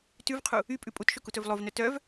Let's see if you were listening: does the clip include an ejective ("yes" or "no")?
yes